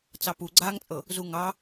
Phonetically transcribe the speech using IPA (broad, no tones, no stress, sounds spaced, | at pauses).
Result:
t͡s ɑ p u ɡ͡ǀ aː ŋ t͡sʼ ɤ | z u ŋ ɑ